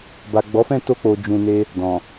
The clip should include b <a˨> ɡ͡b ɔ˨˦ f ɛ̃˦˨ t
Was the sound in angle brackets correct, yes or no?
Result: yes